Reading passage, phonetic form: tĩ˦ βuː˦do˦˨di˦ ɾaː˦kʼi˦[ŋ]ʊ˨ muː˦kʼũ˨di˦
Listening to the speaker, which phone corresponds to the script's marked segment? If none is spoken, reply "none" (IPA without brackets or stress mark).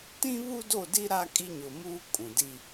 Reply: ɲ